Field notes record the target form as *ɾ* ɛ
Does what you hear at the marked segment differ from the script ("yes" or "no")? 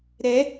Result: no